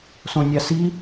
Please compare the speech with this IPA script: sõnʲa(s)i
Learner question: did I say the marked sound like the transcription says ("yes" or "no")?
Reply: yes